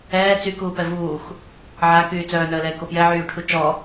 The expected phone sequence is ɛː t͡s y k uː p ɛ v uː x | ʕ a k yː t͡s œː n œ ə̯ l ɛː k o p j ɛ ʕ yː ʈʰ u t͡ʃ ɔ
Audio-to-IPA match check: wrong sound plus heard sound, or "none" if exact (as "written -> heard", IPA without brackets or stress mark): none